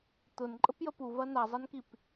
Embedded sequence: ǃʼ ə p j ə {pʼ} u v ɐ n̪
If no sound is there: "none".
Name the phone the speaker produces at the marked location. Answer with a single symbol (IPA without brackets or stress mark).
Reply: p